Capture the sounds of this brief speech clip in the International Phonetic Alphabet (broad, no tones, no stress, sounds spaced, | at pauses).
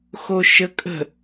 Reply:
x o ʃ ə kʼ ə̤